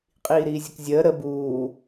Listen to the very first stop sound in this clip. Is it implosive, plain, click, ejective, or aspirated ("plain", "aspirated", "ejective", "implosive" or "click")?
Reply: ejective